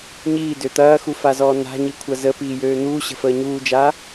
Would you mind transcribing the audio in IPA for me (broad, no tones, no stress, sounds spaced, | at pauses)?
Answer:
ɲ iː d ø t̪ ɐː x u f a z ɔː n a̤ ɲ i kʷʰ ɐ z ə p iː j øː n̪ uː ɕ ə̤ f əː ɲ uː d͡ʒ a